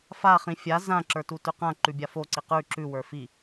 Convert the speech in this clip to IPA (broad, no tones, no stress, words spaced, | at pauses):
fa χĩfʲa zã ǁə˞tutʉqã ǃʉbʲafo ǀiqʉ ǁʉ wə˞fi